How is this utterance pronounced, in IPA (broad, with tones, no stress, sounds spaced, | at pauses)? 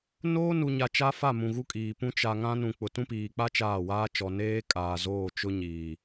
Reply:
n oː˦ n u˨ ɲ a˨ t͡ʃ a˦ f a˦˨ m ũ˨ ɣ u˦ kʼ iː˨ p ũ˦ t͡ʃ a˨ ŋ ã˦ n ũ˨ k͡p ʊ˨ t ũ˦ p iː˨ k͡p a˦ t͡ʃ aː˦˨ w aː˦ t͡ʃ ɔ˨ n eː˦ kʼ aː˨ z oː˦˨ t͡ʃ ʊ˦ ɲ iː˨